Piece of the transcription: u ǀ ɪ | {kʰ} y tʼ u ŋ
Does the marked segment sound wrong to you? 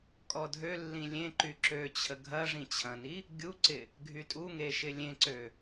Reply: yes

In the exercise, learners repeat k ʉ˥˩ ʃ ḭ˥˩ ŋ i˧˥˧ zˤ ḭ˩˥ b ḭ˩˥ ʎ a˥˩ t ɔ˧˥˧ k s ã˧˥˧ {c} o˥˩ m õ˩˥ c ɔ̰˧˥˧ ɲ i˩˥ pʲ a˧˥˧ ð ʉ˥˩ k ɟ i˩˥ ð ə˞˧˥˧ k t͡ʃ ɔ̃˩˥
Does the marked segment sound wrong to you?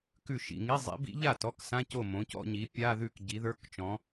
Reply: no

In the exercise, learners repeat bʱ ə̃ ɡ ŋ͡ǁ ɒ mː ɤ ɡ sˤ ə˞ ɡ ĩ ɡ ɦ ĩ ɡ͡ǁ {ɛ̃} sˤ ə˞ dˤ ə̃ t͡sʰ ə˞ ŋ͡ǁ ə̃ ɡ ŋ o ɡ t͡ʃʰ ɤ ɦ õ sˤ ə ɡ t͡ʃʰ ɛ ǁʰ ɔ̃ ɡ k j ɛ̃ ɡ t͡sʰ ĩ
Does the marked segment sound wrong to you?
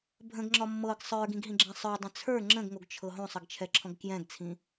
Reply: no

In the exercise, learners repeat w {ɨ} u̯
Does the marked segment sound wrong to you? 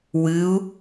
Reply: no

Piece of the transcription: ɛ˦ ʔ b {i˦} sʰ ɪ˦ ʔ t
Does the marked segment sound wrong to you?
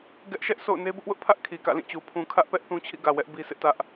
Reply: no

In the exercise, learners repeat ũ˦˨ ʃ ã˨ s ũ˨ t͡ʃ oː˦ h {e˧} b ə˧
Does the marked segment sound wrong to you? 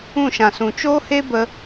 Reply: yes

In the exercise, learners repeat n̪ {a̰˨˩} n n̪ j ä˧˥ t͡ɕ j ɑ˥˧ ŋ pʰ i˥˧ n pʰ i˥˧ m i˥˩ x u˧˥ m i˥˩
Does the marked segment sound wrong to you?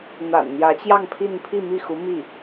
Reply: no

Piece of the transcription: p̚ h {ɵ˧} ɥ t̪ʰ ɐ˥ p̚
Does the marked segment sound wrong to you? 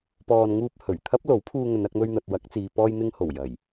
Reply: yes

